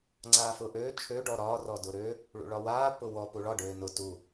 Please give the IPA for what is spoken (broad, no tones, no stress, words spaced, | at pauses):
ŋ͡ǀaːfʊːʔøː t͡ʃʰø ɖɔɾɒː rɔdʊɾø | ɭṵɭɒwaː pʊwɔ puɭɒ ɖøːnʊ tu